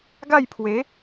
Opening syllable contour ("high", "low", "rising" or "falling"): falling